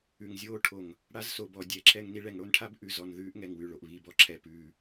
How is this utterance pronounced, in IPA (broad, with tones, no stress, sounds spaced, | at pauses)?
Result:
ʉ˨ ŋ zʲ oː˦ ʈʰ o˨ ŋ | ɽ a˦ z s o˨ b ɔ˨ dʲ ɛ˨˦ ǁʰ ɛ˦ ŋ n i˦ ɭ ɛ˨ ŋ ɽ o˦ n ʈʰ a˦ b ʔ ʉ˨ z ɔ˨ n ð ʉː˦ ʔ ŋ ɛ˨ ŋ w ʉ˨ ɭ o˨ ʔ β i˦˨ b ɔ˦ ǁʰ ɛ˨ p ʉː˨